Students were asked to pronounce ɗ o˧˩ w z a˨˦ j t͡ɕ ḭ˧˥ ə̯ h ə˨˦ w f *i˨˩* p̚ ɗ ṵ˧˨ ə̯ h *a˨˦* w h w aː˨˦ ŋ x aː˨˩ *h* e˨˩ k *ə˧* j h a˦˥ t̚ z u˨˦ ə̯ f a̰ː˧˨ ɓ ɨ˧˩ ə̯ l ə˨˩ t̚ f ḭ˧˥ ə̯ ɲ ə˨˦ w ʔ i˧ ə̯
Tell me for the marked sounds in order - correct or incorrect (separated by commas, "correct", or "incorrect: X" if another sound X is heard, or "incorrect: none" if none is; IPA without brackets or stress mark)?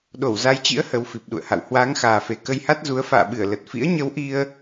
correct, incorrect: a̰˧˨, incorrect: f, correct